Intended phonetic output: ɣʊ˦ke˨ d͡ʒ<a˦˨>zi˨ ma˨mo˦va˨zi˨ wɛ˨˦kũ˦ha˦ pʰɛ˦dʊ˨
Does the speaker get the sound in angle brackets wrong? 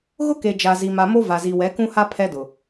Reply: yes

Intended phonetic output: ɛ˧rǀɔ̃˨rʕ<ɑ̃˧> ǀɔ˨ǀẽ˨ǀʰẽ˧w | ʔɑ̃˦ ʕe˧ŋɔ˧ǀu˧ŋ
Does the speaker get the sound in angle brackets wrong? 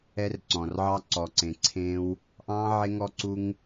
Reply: yes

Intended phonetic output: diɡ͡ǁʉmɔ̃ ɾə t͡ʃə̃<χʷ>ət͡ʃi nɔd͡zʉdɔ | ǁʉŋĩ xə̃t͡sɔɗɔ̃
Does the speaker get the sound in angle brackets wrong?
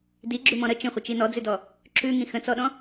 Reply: no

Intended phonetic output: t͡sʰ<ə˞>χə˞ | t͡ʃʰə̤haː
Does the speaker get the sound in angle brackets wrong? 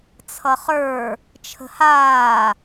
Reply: yes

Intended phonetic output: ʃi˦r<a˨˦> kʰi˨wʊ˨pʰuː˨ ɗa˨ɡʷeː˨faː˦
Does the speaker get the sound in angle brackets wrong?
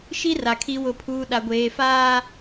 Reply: yes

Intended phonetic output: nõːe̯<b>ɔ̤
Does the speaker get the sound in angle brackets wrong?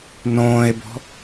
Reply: no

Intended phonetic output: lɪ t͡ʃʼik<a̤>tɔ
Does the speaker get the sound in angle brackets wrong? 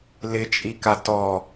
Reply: yes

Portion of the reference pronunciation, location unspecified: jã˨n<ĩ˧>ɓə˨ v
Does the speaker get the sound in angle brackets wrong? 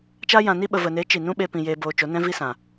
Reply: yes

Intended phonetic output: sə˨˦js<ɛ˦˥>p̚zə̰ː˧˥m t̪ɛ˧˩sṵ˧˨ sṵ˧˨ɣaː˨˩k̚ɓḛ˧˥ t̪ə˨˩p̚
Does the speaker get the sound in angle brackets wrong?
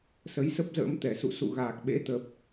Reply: yes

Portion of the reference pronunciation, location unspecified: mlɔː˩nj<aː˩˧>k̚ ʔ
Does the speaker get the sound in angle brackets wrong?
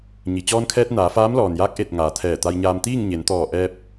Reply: yes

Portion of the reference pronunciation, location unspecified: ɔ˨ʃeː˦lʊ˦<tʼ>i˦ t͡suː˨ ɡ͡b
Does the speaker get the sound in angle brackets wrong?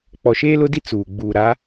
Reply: yes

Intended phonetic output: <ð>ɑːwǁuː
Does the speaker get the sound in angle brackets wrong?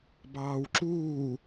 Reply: yes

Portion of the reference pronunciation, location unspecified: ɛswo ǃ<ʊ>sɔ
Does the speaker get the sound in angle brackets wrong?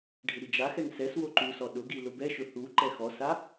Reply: yes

